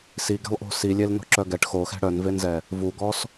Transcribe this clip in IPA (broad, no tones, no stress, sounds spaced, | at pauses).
s i ɡ ɛ̤ lˠ ʔ o̤ s i lʲ e l n o̤ ǁ œ ɡ ɛ ʈ x o x ɛ̤ ɽ œ n v e n z ɛ | v u ɡ ɔ s